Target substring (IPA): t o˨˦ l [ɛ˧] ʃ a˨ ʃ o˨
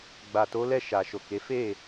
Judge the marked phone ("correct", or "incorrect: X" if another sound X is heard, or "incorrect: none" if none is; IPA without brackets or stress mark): incorrect: ɛ˦˨